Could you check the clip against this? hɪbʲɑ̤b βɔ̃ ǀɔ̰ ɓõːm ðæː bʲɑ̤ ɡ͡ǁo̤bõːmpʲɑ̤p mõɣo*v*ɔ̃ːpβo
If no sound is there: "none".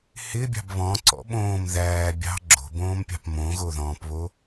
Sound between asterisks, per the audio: ð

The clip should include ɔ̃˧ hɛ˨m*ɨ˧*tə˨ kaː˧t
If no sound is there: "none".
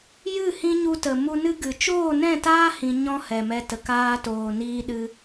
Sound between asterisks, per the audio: ɛ˧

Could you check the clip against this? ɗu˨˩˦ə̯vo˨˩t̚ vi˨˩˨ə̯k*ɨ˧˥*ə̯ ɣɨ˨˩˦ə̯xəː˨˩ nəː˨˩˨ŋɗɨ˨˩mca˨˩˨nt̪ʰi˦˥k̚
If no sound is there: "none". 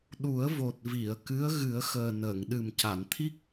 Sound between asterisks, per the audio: ɨ˧˥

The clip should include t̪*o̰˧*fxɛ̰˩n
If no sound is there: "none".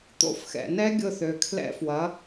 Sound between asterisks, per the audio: o̰˧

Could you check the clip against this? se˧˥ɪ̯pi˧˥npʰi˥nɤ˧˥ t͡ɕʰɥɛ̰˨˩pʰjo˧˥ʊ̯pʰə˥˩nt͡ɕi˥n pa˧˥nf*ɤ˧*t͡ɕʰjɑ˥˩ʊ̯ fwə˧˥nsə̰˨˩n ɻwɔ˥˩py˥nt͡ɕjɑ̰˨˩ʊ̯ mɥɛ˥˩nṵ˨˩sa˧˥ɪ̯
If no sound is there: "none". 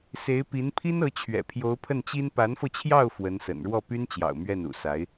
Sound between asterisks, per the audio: ɤ˧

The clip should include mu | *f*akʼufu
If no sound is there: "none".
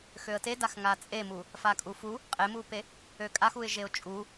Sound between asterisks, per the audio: f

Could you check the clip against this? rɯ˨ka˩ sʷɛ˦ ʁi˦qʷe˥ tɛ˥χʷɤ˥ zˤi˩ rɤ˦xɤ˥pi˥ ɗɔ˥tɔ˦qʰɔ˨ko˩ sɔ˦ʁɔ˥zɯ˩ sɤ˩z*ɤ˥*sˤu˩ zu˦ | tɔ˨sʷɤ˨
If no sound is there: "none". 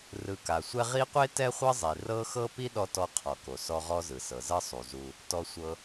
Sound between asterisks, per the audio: ɤ˥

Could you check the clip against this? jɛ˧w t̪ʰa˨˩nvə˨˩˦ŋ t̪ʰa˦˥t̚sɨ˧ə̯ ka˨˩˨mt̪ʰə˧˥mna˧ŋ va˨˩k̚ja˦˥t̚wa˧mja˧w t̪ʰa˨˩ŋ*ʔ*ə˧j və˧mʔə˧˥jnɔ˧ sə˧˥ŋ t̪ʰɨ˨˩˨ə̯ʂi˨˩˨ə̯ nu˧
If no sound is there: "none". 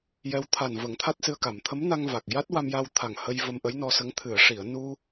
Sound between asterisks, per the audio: h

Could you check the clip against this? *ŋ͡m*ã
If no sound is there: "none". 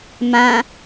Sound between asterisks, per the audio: m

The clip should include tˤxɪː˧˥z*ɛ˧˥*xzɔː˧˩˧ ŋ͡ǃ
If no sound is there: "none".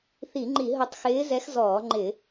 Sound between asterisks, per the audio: ɛ˧˥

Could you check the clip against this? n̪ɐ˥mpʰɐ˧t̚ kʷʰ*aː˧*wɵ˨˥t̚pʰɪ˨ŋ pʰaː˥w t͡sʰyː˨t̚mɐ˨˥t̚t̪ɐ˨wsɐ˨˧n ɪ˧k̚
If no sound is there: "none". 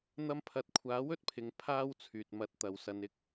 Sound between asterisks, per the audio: aː˨˥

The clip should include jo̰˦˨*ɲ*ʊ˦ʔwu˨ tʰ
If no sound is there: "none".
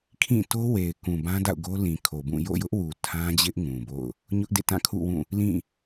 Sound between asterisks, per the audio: j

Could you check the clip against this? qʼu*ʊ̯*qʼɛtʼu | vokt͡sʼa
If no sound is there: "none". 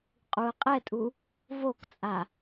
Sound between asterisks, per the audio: ə̯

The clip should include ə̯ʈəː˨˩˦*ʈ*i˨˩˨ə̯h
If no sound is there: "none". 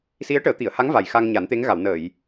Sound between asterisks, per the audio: t̪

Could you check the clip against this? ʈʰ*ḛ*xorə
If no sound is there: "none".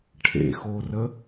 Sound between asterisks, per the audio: ḛ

